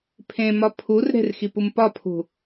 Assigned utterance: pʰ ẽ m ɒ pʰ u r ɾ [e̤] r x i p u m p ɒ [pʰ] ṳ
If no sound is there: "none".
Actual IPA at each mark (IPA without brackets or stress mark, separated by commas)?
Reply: e̤, pʰ